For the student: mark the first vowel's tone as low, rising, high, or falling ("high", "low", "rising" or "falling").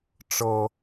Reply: high